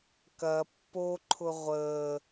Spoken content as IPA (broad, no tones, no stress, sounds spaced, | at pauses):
k ɐ pː o ǃʰ ʊ ʁʷ əː